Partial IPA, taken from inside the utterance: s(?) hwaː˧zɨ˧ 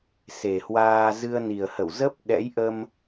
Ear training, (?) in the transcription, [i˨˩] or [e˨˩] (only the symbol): e˨˩